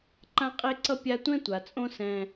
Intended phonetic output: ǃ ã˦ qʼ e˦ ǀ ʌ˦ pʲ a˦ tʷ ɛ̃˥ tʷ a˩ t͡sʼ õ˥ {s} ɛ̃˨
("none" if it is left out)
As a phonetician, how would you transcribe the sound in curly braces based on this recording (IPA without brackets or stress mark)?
s